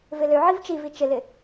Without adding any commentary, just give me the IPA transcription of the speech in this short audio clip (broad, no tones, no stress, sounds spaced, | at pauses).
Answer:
v ɪ l ø ʕ i v t͡ʃ i v i t͡ʃ ɪ l ɪ